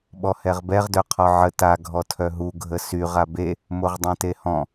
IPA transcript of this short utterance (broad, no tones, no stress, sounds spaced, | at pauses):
ɓ ɔ h ɛ ʁ b ɛ ʁ d œ qʰ ɔ ʕ ə t a ɡʱ ɔ tʰ œ ɦ u ɡʱ ə s y ʁ a b e | m o ʁ dˤ ɛ̃ t e h ɔ̃